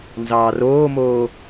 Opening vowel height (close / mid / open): open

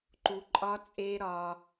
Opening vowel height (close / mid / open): close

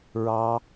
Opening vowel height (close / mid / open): open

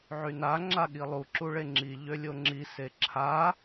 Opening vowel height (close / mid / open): close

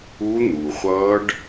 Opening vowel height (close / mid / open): close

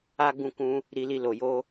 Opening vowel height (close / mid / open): open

